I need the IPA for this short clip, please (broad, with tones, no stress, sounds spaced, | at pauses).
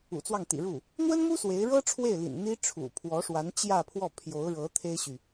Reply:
ṵ˨˩ t͡s w ɑ˥˩ ŋ t̪ ḭ˨˩ ɻ u˥˩ | n̪ w ə˥ n m u˥ s w e˧˥ ɪ̯ ɻ ɤ˥ ʈ͡ʂʰ w e˥˩ ɪ̯ l ḭ˨˩ n n̪ i˥ ʈ͡ʂʰ ṵ˨˩ pʰ w ɔ˧˥ ʂ w a˧˥ n t͡ɕ j ä˥˧ pʰ w ɔ˥˩ pʰ j o˧˥ ʊ̯ ɻ ɤ˧˥ t̪ʰ e˥ ɪ̯ ɕ y˨